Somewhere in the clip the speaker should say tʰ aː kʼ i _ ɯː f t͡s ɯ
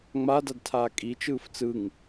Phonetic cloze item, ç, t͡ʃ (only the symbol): t͡ʃ